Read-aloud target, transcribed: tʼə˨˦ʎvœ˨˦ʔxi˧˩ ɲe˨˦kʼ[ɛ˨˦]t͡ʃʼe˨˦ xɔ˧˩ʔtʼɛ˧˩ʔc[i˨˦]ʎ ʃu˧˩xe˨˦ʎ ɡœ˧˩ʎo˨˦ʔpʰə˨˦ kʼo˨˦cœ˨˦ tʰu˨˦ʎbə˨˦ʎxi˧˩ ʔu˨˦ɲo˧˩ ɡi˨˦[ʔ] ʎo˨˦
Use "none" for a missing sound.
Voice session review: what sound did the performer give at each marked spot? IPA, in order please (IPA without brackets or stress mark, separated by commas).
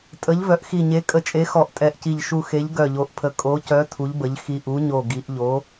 ə˨˦, i˧˩, ʔ